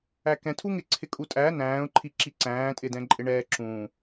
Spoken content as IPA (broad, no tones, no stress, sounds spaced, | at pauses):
æ k ɛ̃ tʰ u ŋ ɪ ǀʰ ɪ kʼ u tʼ æ n æ̃ː ʊ̯ ǃʰ i ǁ i ǀ æ̃ː tʼ ɪ d ɛ̃ ǃʼ ɪ ɳ ɛː ǁ ũː